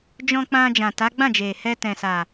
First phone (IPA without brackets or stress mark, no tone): d͡ʒ